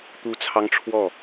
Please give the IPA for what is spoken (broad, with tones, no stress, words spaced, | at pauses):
t̪u˦t͡sʰɑ˦ŋʈ͡ʂʰwɔ˥˨